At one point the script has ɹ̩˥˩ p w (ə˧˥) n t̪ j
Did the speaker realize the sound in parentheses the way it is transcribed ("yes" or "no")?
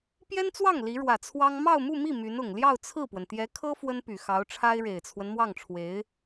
no